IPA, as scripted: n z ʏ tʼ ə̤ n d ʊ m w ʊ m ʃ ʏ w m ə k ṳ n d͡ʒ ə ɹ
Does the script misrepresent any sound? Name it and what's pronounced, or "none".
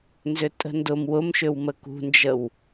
ɹ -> w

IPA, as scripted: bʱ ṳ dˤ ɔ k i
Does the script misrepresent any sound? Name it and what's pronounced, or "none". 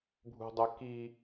ɔ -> ə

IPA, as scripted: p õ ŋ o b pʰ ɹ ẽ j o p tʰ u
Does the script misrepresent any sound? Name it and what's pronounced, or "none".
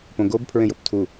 ŋ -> ɡ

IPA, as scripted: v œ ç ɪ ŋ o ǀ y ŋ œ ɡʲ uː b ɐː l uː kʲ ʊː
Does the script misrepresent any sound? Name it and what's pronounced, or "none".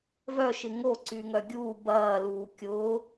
ç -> ʃ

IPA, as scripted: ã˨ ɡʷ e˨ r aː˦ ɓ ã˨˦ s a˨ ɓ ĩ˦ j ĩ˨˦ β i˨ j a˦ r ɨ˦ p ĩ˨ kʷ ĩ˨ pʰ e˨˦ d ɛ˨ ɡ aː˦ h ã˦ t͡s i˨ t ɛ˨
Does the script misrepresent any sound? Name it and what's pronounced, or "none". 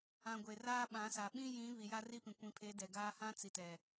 ɨ˦ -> i˦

